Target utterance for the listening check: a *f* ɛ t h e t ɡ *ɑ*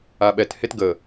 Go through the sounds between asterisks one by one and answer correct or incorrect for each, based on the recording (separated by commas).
incorrect, incorrect